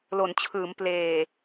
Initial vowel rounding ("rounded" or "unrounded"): rounded